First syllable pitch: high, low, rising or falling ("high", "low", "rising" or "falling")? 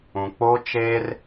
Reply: low